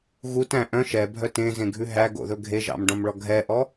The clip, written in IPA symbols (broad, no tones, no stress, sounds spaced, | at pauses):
ɣ u t æ̃ ʔ œ̃ ʃ ɛ bʱ œ t ẽ z ẽ ɡʱ ʉ ɦ æ ɡ o̰ ð ɵ ɡʱ e ʒ ɑ̰ m ɖ ɔ̃ m ɭ ɔ ɡʱ ɛ ʔ ɔ